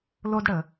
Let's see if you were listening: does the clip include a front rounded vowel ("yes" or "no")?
no